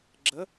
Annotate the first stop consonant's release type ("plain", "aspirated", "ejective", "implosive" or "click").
click